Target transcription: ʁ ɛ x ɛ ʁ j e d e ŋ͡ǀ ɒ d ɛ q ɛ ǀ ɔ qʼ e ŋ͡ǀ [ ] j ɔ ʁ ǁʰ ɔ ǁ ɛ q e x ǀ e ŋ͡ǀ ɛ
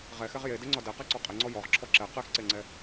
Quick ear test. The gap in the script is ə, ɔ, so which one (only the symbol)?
ɔ